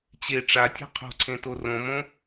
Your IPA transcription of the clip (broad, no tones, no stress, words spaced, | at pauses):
t͡ɕe ʈ͡ʂatʲa̤ qʰo̤ǀʰẽto rõmõ